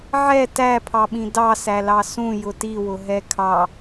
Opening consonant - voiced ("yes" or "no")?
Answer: yes